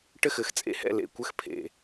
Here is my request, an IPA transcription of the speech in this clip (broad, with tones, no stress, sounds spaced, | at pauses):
ʈ ɘ˥˩ x ɘ˨˩˦ x t͡sʼ ḛ˥˩ h ɛ̰˥˩ l ḛ˥˩ kʷ ɘ˥˩ x pʰ ḛ˨˩